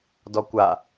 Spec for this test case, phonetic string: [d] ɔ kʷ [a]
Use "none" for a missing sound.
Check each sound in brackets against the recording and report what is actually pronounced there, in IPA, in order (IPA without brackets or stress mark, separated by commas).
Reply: d, a